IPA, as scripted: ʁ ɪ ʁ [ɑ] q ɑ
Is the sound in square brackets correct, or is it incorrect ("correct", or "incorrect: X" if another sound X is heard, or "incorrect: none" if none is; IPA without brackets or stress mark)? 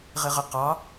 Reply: incorrect: ə